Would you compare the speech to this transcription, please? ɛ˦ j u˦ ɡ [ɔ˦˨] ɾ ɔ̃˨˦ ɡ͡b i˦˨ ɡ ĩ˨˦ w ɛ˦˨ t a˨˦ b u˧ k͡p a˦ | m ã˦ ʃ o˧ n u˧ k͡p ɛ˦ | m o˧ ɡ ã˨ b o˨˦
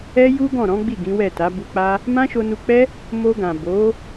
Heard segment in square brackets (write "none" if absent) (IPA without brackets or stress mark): ɔ̃˦˨